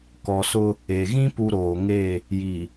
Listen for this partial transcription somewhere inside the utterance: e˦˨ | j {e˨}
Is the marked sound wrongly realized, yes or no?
yes